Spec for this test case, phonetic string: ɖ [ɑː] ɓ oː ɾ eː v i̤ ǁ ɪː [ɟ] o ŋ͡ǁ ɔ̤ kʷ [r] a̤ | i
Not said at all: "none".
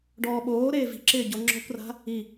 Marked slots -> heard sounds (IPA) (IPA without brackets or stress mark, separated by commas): ɔː, ɟ, r